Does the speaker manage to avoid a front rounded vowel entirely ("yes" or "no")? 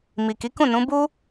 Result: yes